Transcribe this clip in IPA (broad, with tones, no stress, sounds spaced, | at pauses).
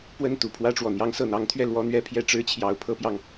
p w ə˥˩ n t̪ u˨˩ pʰ w ä˥ ʈ͡ʂ w ɔ˨˩ n̪ j ɑ˧˥ ŋ s ɤ˨˩ n̪ ɑ˧˥ ŋ t̪ʰ ɥ ɛ˥˩ l w ɔ˥ n̪ ɥ ɛ˥ pʰ j ɛ˥˩ ʈ͡ʂ ɻ̩˥ t͡ɕʰ j ɑ˧˥ ʊ̯ pʰ ɤ˥ p j ɑ˨ ŋ